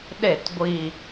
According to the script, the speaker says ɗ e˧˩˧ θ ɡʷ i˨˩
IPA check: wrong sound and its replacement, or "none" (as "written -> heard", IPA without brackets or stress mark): θ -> t